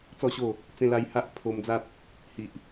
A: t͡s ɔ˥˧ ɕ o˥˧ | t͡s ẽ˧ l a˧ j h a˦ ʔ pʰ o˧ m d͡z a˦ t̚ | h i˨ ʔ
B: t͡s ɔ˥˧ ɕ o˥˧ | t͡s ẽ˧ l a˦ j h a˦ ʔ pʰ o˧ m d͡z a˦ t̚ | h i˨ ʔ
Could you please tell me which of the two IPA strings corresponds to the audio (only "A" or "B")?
A